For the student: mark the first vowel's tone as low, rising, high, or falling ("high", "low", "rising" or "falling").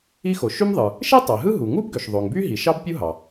high